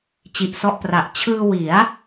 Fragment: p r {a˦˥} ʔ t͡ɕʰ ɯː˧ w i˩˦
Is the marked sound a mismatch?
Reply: yes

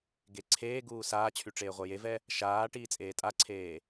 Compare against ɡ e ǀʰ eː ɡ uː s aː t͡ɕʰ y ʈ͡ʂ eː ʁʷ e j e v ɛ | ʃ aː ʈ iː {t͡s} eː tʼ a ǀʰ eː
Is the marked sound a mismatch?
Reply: yes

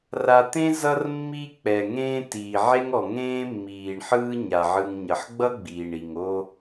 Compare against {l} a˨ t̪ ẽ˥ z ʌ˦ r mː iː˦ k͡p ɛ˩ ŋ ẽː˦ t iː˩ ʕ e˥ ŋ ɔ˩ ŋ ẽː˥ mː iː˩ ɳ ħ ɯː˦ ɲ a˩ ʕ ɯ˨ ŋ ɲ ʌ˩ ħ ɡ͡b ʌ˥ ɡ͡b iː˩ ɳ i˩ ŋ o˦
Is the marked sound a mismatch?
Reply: yes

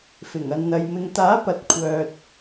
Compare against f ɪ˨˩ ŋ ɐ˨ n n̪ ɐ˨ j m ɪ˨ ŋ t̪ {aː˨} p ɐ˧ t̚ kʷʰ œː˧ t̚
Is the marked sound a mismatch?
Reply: yes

